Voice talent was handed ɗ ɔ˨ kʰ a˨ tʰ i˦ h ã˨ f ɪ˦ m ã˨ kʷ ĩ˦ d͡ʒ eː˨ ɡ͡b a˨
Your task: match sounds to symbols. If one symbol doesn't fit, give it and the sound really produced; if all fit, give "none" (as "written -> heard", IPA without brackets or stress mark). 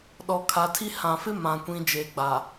none